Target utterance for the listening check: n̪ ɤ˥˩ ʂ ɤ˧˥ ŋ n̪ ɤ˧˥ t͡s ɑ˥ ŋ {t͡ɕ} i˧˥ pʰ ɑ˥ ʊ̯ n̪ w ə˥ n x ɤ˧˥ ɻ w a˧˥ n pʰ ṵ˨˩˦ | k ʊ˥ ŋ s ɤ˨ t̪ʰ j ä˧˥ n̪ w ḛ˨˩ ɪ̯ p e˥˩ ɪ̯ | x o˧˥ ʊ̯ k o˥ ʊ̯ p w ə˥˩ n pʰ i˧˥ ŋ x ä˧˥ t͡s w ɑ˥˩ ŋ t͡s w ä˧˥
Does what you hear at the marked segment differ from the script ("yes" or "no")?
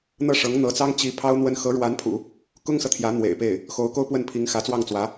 no